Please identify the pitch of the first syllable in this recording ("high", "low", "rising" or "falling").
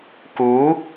rising